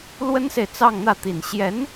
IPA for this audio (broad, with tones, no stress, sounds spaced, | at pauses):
l w ə˥ n s e˨ ɪ̯ t͡s ɑ˥˧ ŋ n̪ ä˥˩ t̪ i˨˩ n ɕ j ɛ˧˥ n